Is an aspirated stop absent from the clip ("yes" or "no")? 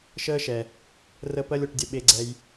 yes